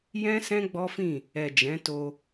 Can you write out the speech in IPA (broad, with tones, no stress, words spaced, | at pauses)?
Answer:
jɛ̃˦ sɛ̃˦ɡ͡bɔ˦fĩ˦˨ | ɛ˨d͡ʒɛ̃˨˦to˧